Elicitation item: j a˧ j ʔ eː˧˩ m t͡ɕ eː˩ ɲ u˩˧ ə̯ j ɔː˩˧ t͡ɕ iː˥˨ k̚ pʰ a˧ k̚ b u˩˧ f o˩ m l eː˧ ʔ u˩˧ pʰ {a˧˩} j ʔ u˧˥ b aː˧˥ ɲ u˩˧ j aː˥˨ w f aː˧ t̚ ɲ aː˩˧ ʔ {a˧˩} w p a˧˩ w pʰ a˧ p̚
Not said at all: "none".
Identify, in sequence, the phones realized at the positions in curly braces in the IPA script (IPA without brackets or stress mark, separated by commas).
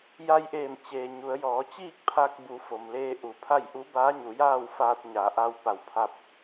a˥˨, a˧